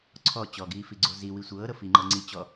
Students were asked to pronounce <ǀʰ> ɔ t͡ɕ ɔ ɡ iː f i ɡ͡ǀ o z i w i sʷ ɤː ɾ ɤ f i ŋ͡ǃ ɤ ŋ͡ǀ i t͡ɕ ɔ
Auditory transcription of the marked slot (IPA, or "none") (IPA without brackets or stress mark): ǀʰ